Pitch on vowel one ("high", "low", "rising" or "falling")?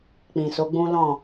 low